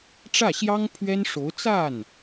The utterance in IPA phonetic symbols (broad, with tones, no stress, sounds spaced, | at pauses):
ʈ͡ʂ ä˥˩ ɕ j ɑ˥ ŋ pʰ ɥ ɛ˥ n ʂ o˧˥ ʊ̯ t͡s a˥˩ n